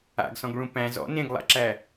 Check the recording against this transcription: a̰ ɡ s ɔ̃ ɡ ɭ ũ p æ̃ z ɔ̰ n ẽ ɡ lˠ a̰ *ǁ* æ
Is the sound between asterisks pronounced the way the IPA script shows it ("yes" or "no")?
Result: yes